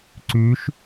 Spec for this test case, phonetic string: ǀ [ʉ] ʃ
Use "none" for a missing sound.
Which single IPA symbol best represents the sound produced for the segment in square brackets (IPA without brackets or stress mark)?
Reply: ʉ